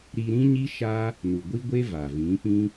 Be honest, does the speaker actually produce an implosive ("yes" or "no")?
no